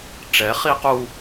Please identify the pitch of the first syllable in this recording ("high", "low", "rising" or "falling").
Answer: rising